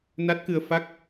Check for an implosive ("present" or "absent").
absent